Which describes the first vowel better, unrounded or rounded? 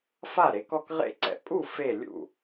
unrounded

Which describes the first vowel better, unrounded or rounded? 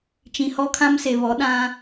unrounded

